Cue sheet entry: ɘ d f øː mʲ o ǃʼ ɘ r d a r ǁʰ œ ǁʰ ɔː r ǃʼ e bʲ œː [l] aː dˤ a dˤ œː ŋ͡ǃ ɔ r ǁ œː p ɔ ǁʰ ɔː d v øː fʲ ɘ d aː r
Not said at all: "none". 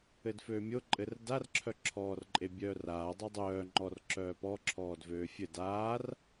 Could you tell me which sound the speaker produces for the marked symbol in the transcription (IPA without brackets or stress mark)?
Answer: r